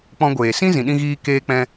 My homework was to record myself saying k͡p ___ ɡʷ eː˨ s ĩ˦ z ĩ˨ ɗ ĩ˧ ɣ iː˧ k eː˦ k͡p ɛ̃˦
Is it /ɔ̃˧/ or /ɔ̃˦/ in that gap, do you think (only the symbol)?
ɔ̃˧